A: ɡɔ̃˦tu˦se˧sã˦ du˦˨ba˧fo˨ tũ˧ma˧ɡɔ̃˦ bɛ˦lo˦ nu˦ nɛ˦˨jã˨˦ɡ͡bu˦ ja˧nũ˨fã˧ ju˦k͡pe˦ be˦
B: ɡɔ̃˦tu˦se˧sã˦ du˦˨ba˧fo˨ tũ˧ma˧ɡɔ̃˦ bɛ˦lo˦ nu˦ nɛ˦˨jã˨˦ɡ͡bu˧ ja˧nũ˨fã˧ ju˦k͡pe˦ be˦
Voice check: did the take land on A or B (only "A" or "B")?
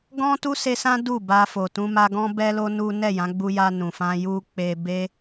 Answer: B